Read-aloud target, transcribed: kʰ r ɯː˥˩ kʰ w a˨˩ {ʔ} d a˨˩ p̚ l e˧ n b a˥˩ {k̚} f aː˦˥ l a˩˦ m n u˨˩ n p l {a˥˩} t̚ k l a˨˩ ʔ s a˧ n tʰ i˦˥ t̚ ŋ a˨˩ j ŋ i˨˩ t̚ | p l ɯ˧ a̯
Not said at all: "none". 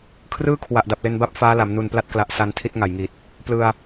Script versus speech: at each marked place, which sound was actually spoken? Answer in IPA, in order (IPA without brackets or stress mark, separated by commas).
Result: ʔ, p̚, a˥˩